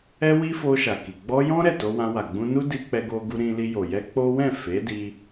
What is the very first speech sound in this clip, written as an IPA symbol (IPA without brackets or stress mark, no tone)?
ɛ